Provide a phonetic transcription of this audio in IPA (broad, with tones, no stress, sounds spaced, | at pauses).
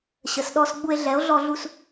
ɕ ə˩ s ɗ ɔ˧ s ɡ͡b u˧ e̯ ɮ ɛ˩˥ o̯ ɮ ɔ˧ ɮ u˧ s